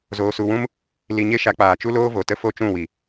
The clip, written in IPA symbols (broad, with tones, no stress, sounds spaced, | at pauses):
z oː˧ s u˧ w ũ˦ m | l i˧ ɲ e˦ ʃ a˧ k͡p aː˨ t͡ʃ u˦ l oː˦ v o˨ t ə˦ f o˦ t͡ʃ ũ˦˨ w i˨